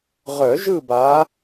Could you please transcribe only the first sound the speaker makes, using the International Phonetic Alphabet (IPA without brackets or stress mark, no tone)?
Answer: ʁ